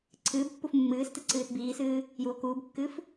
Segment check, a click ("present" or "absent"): present